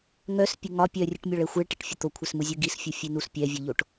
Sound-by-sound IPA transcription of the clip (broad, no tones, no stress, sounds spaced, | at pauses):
ŋ œ s pʲ e ŋ ɒ pʲ œ rʲ ɨ ʈ mʲ ɒ ɭ ɛ xʷ e ɭ ʈ e ʈ fʲ ə t̪ o kʷʰ ɛ s m ɯ zʲ ɯ ɡ i s fʲ u fʲ e n u s pʲ ɛ vʲ ɯ ʎ o ʈ